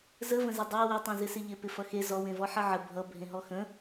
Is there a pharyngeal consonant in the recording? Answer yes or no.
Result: yes